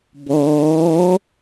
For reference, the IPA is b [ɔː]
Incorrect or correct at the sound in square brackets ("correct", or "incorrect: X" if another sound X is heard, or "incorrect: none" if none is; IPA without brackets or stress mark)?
correct